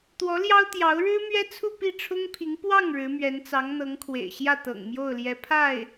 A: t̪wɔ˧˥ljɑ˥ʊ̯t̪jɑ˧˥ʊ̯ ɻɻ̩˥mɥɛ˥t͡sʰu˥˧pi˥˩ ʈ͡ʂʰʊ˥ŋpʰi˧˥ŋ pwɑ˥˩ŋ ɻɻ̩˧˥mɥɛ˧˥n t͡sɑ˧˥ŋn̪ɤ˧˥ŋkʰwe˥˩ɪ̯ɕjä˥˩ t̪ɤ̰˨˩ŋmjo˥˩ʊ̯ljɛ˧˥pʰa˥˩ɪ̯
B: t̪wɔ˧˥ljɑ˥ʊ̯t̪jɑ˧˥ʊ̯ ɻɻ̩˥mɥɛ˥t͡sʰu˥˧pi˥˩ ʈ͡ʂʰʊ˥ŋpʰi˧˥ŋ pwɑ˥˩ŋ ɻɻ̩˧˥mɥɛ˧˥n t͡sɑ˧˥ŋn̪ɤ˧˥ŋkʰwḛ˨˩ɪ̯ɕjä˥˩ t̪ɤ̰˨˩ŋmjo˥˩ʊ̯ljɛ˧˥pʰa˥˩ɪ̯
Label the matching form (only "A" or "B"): B